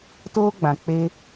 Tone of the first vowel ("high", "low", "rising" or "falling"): high